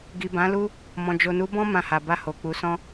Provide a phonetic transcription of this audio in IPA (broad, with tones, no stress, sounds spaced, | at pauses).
ɡ i˨ b ã˨˦ l u˦ | m ɔ̃˨ d͡ʒ o˨ n u˨˦ b ɔ̃˦ m ã˧ h a˨ b a˧ h o˨ k͡p u˨˦ s ɔ̃˦